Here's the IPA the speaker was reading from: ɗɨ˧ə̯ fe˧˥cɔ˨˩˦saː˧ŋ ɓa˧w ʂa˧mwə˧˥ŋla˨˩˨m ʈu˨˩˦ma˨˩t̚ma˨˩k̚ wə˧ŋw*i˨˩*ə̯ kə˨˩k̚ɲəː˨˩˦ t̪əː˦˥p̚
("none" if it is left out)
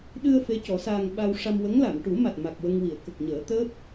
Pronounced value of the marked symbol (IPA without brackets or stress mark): i˨˩˨